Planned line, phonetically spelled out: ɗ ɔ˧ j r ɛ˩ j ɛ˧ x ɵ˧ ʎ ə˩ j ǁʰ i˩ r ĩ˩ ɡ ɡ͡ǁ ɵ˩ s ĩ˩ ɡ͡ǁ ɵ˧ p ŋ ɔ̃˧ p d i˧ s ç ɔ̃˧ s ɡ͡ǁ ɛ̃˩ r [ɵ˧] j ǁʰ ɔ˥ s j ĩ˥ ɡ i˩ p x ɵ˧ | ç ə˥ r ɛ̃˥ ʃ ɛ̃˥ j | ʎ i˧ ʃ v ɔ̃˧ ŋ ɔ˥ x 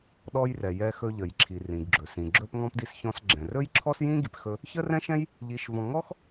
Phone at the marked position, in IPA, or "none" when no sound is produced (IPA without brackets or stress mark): ɵ˥